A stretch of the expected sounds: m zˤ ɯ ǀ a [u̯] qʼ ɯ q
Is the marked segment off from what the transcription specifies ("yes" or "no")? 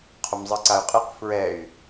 yes